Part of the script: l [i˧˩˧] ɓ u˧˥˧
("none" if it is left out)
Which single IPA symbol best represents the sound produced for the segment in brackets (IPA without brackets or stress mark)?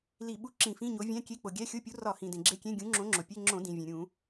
i˧˩˧